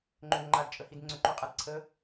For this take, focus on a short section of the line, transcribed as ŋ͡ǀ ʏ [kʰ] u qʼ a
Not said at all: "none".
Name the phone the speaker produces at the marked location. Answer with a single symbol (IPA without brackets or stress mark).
ǃ